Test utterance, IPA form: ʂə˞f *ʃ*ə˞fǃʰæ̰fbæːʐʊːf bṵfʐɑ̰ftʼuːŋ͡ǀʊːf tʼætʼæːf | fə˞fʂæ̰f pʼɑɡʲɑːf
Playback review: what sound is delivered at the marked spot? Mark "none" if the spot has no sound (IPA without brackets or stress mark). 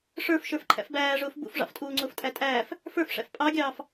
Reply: ʃ